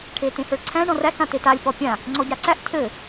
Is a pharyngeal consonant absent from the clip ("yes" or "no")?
yes